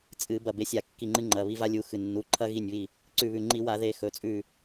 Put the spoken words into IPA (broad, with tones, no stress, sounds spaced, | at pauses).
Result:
t͡sʼ ɨ˧˩˧ b ɐ˧˩ b e˨˦ sʲ a˧˩˧ kː i˧˩ ŋ͡ǃ ɨ˦ ŋ͡ǃ ɐ˩˧˩ β i˦ v a˦ lʲ u˨˦ x ɨ˧˩ nː u˩˧˩ ǃʰ ɐ˦ ɣ i˧˩ nʲ β i˧˩ | ǀ ʉ˧˩ β ʉ˧˩ ŋ͡ǃ i˧˩˧ w a˧˩˧ ð e˧˩ x ɵ˩˧˩ t͡sʼ ʉ˧˩